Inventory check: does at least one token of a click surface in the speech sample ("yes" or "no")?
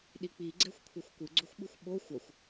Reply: yes